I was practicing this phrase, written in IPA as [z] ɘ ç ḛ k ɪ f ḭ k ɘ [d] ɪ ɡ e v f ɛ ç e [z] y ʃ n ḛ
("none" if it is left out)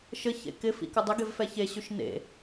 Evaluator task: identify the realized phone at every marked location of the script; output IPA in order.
ʃ, dˤ, ɕ

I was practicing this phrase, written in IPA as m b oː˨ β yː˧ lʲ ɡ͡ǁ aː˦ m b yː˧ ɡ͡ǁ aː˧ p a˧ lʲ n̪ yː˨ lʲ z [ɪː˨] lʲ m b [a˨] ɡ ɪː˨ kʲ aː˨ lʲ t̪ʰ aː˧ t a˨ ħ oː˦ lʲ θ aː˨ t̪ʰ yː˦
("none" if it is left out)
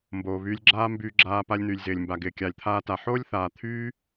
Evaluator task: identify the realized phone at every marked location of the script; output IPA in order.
ɪː˨, a˨

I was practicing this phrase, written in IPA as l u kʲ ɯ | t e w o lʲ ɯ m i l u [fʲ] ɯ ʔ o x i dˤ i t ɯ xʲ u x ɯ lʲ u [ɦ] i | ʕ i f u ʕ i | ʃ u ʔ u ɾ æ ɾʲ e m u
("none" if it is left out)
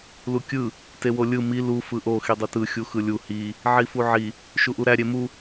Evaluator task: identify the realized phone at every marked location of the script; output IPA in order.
f, h

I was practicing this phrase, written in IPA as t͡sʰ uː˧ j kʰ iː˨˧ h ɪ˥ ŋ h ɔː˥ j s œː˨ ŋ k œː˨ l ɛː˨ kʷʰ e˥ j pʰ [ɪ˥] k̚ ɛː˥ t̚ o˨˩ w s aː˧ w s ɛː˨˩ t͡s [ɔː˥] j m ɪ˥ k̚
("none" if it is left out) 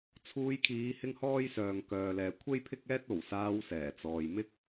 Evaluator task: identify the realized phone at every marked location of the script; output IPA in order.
ɪ˥, ɔː˨

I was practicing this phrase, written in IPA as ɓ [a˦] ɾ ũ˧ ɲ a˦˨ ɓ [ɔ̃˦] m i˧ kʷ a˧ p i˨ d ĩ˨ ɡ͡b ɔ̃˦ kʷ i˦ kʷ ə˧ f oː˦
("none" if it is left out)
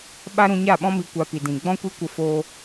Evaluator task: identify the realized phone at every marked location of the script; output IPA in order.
a˦, ɔ̃˦

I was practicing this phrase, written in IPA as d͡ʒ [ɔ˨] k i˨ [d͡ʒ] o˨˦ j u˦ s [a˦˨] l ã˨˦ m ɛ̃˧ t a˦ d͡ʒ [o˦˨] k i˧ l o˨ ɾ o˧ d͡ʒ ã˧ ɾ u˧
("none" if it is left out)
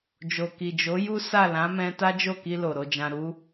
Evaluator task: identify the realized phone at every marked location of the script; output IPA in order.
o˨, d͡ʒ, a˦˨, o˦˨

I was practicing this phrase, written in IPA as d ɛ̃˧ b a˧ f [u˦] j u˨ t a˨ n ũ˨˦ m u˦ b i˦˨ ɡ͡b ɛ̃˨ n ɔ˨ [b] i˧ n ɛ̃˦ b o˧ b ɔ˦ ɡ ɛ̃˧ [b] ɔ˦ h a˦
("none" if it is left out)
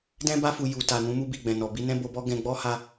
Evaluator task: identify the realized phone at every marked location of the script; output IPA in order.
u˨, b, ɡ͡b

